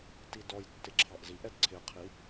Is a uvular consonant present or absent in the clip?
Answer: present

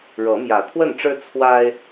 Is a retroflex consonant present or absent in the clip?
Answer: present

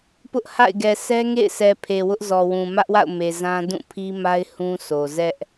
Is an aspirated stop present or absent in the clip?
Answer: present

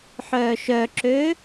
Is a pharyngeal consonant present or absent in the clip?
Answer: present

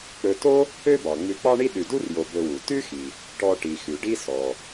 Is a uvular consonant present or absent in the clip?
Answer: absent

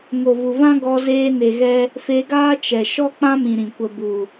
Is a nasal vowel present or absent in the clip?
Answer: present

